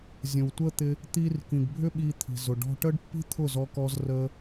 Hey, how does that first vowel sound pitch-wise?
low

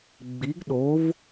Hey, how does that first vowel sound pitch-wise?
rising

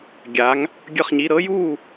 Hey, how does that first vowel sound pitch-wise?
rising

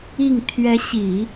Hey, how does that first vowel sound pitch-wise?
falling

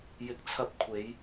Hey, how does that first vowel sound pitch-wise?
low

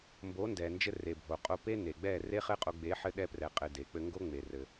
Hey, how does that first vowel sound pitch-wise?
rising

